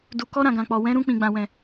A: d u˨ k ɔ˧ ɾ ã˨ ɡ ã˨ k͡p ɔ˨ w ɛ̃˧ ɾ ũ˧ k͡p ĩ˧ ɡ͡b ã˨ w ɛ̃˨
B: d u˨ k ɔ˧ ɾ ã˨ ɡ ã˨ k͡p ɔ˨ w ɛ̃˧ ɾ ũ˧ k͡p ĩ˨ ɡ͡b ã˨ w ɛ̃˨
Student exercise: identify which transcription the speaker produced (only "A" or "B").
B